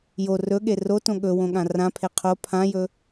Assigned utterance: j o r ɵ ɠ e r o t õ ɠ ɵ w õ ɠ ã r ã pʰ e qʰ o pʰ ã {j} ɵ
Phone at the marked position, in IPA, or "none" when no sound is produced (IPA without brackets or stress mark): j